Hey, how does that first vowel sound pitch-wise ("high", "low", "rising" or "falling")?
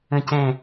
low